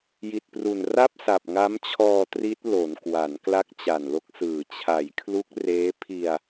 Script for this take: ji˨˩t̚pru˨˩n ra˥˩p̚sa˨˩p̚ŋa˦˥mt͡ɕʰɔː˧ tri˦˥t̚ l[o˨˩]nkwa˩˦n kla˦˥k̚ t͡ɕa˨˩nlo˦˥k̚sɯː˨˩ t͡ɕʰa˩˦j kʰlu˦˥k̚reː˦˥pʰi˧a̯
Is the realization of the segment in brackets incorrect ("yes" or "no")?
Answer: yes